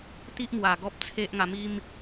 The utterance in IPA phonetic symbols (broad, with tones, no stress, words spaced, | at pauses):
t̪i˦ʔmwa˨˩ ɡɔ˦p̚ t͡sʰe˦ʔŋa˧mi˦m